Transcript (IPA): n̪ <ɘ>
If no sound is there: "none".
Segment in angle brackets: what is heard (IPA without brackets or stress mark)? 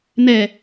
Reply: ɛ